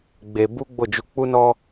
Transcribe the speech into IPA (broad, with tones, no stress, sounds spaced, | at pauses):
ɡ͡b e˧ b u˦ ɡ͡b o˦˨ d͡ʒ u˧ k͡p u˧ n ɔ˧